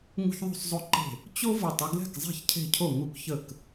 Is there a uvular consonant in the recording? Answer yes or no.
no